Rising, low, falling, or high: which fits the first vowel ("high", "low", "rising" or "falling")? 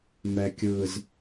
low